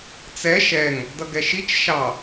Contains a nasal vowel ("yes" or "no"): no